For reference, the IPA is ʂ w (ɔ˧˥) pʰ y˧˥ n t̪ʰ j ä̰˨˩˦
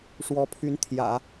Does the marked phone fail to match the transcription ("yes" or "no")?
no